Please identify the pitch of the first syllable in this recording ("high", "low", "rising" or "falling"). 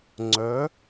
rising